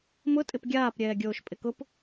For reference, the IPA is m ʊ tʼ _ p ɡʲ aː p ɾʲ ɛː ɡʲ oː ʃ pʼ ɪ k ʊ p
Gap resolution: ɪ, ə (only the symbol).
ɪ